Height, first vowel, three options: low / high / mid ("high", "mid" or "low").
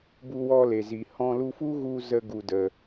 high